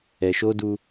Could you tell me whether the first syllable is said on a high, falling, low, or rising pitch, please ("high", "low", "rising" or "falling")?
low